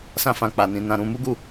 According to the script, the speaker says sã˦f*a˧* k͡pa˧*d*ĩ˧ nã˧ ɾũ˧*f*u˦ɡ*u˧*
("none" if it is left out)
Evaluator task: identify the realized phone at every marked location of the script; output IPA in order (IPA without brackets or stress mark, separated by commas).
ã˧, n, m, u˦˨